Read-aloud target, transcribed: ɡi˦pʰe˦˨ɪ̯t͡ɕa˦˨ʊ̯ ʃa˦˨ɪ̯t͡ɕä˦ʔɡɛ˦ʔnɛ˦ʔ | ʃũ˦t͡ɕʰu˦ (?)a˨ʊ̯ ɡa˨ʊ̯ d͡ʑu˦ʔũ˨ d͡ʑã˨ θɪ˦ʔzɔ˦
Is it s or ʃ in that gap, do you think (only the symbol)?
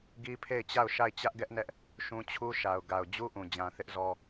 ʃ